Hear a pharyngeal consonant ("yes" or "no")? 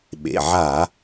yes